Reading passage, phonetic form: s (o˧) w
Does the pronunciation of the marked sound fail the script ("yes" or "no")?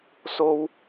no